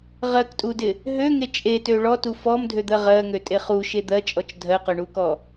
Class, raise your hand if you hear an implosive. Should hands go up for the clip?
no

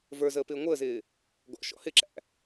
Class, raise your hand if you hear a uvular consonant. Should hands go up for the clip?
no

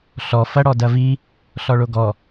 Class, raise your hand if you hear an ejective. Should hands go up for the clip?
no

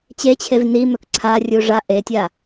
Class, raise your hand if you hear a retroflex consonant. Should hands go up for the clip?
yes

